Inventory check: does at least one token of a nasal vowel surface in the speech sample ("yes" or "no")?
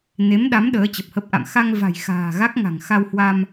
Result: no